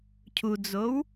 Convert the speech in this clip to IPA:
cʰud͡zow

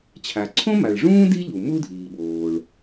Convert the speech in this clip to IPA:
t͡ɕʰa˩ǀʰõ˥ma˩ɭʐũː˥ di˥ʎu˩ mu˥dʱiː˩ɓoː˩ɭ

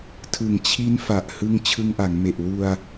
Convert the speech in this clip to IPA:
tʰɯ˨˩ŋt͡ɕʰi˦˥n fa˨˩ʔhɯ˧ŋ t͡ɕʰɯ˧ŋʔa˩˦ŋme˨˩ʔ wu˧a̯

